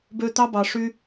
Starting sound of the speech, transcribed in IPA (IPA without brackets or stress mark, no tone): b